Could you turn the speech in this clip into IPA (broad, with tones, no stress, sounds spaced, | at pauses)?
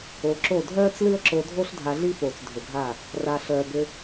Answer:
o˨ ǁ o˦˨ dʱ œː˦ t͡s l ɨ˦ ə̯ ǁ o˧ dʱ o˦ ɬ dʱ a˧ ɮ i˦ f oː˨ t͡s dʱ ʏ˨ ɡʱ a˦˨ | r a˨ ɬ œː˨ b ʏ˧